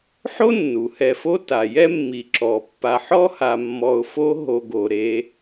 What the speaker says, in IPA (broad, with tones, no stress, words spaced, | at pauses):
ħo˥nːu˩hɛ˨fo˦ ta˩ jɛ˦mːi˩ ǁɔ˩pːa˨ħɔ˥ha˨ mːɔ˨ʊ̯fo˦ɦo˨ ɡo˩ɾe˨